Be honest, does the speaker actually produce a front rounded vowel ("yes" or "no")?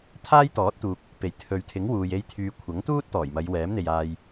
yes